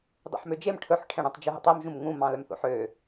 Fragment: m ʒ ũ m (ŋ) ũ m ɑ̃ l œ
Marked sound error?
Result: no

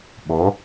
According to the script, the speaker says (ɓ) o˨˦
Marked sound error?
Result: no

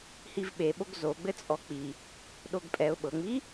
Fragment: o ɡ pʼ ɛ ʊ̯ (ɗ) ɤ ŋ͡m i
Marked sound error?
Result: yes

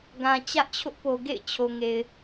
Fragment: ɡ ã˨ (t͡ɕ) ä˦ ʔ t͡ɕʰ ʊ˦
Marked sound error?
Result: no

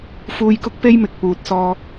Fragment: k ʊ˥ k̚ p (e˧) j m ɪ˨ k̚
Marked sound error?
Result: yes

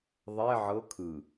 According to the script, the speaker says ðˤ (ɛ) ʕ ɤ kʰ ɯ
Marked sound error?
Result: no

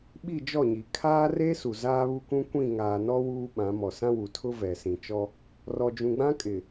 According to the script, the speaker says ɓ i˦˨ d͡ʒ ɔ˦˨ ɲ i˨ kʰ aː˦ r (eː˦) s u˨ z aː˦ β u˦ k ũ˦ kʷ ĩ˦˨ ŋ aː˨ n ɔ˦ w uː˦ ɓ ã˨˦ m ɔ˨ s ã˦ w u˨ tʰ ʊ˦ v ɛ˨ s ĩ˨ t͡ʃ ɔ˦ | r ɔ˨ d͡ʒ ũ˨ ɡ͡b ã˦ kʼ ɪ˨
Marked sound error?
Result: yes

